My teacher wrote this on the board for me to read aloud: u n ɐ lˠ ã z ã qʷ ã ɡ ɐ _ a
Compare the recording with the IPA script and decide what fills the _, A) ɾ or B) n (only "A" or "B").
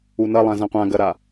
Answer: A